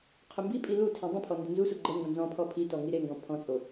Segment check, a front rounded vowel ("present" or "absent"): absent